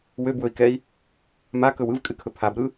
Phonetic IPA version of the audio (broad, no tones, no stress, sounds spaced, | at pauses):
w ø b w ɵ i̯ k ɛ i̯ | m a k ɵ w ɯ v kʼ ɨ kʰ ɵ pʰ a b ɾ ɯ